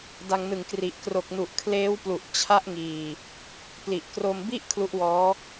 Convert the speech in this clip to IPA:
d a˧ ŋ n ɯ˨˩ ŋ k r i˨˩ ʔ k r o˨˩ k̚ n u˨˩ ʔ kʰ l eː˦˥ w p l u˨˩ ʔ t͡ɕʰ a˦˥ ʔ ŋ iː˨˩ | p l i˨˩ ʔ k r o˧ m b i˥˩ ʔ kʰ l u˦˥ ʔ w ɔː˦˥

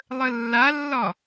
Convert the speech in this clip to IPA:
lˠ ə lː a lː ɒ

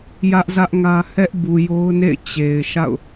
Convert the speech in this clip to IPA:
j ä˦ ʔ z ä˦ ʔ ŋ ä˦ h ɛ˦ ʔ b u˨ j o˦ ʊ̯ n ḛ˦˨ ɪ̯ t͡ɕ e˨ ɪ̯ ʃ a̰˦˨ ʊ̯

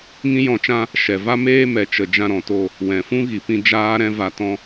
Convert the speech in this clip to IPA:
ŋ ĩ˦ j ɔ̃˧ t͡ʃ ã˦ | ʃ ɛ˨ v a˦ m eː˦ m ɛ˨ t͡ʃ ə˧ d͡ʒ ã˧ ɾ ɔ̃˨ t o˦˨ | w ɛ̃˨ f ũ˦ ɣ i˨ p ĩ˧ d͡ʒ aː˦ ɾ ɛ̃˦ v a˧ t ɔ̃˦

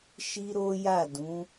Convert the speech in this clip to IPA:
ʃ i˦ ɾ o˦ j a˦˨ d ũ˨˦

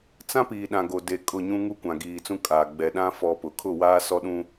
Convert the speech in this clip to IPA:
t͡s ã˦ p iː˨ ɗ ã˨ ɡ o˨ d e˨ kʼ ʊ˦˨ ɲ ũ˦ ŋ u˦ kʷ ã˨ ɡ iː˨ t͡s ũ˦ kʼ aː˨ ɡ͡b ɛ˨ ɗ ã˦ f ɔ˦ p ʊ˨ kʰ ʊ˦˨ w aː˦ s ɔ˦ ɗ ũ˦

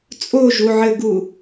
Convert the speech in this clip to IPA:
t͡sʼ o ʒ u ʕ ɘ ɡ u

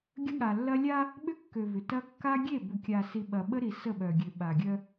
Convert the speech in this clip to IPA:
ɡʲ ə˦ ɠ a˨ lː ɐ˦ lʲ a˦ | ɓ ʏ˦ kː ø˨ v ʏ˨ t ɐ˦ kː a˦ ɡʲ e˦˨ b ʏ˨ kʲ a˨ s i˨ ɓ ɐ˨ ɓ ə˦ ɾ i˨ s ə˦˨ ɓ œ˨ ɡʲ ø˨ ɓ a˨ ɡʲ œ˦

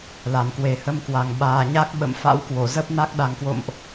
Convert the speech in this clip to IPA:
l a˧˩ n k w e˨˩ h ə˧ m k w a˨˩ ŋ ɓ aː˨˩ ɲ a˦˥ k̚ ɓ ə̰˧˨ m f a̰˧˥ w k w o˧˩ z ə˦˥ p̚ n a˦˥ k̚ ɗ a˨˩ ŋ k w o̰˧˨ m ʔ

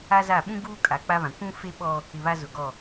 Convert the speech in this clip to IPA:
a˦ z a˦˨ ɓ ũ˦ ɡ uː˦ kʼ a˨ k͡p a˦ β ã˨ kʷ ũ˦ f e˦ ɓ ɔ˦ | ɪ˨ β a˦ z ʊ˨ ɡ ɔ˦˨

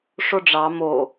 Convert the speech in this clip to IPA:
ʂ o ɖ͡ʐ ɑ m o

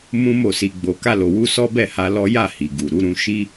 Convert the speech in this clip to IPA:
m ũ˦ m o˦˨ s i˧ ɡ͡b o˧ k a˧ l o˨ w u˧ s ɔ˦ b ɛ˦˨ h a˧ l ɔ˦ j a˦˨ h i˨ ɡ u˨ ɾ u˨˦ ɾ ũ˧ ʃ i˦

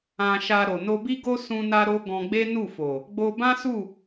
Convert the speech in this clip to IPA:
ã˧ ʃ a˧ ɾ o˨ n o˧ b i˦ ɡ o˦ s ũ˧ n a˦ ɾ o˦ ɡ ɔ̃˧ ɡ͡b e˦ n u˦˨ f o˨ | ɡ͡b o˧ b ã˦ s u˦˨

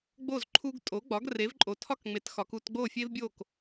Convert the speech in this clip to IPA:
ɡ͡b o˥˩ z ǃʰ u˧ ɡ tʼ o˩˥ ɡ͡b ɒ˩˥ ɡ r e˩˥ v ǃʼ o˩ tʰ ɒ˥˩ k ŋ͡m e˩˥ t x ɒ˩ k u˧ t ɡ͡b o˥˩ fʲ e˥ v bʲ o˥˩ k

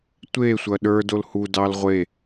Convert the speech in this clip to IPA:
tʷ e sʷ ɐ ɗ ə˞ d o l h u d ɑ l ʁʷ e

